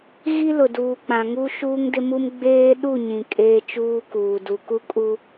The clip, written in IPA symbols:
ɣ i˦ l ʊ˨ d uː˨ k͡p ã˨ ŋ u˦ ʃ uː˦ ŋ d ɪ˦ m u˦ m ɡ͡b eː˦ ɗ u˦˨ ɲ ĩ˨ kʼ eː˦ t͡ʃ uː˦ k uː˨ d u˨ k u˦ kʼ u˦

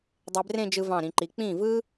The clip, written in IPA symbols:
dˤ e˧ b r ẽ˥˧ d͡ʒ ɯ˧ v ɑ̃˧˩ ɾ ĩ˩˧ ǃ i˩˧ k͡p ĩ˧˩ v ɯ˧

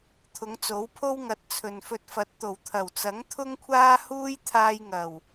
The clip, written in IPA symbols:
t̪ʰ ʊ˨˧ ŋ t͡s o˨˥ w pʰ o˥ w ŋ ɐ˨ t̚ t͡sʰ ɵ˨ n f ɵ˧ t̚ f ɐ˨ t̚ t̪ o˨˩ w t̪ʰ ɐ˨˩ w t͡s ɐ˨˥ ŋ t̪ʰ ʊ˥ ŋ kʷʰ aː˥ h uː˥ j t̪ʰ aː˧ j ŋ ɐ˨˩ w

